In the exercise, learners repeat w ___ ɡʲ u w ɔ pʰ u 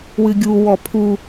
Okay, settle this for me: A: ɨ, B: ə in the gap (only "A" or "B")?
A